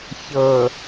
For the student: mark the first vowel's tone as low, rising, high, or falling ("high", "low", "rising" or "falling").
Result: low